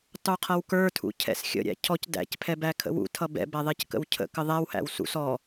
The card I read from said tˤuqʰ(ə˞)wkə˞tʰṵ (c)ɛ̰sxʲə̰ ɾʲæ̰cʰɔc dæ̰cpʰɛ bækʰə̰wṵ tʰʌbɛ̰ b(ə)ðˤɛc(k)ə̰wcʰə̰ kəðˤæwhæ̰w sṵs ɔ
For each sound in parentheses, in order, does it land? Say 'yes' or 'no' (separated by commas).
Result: no, no, no, yes